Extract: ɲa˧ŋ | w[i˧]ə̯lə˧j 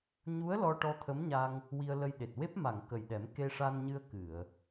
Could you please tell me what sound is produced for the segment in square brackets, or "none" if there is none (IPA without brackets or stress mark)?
i˧